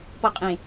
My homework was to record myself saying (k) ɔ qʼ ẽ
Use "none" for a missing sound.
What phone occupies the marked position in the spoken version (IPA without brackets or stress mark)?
p